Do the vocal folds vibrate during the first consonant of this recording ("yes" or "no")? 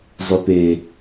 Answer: yes